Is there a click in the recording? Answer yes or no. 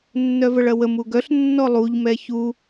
no